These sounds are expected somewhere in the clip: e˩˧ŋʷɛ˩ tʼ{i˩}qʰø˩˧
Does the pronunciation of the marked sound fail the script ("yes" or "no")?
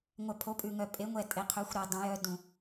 yes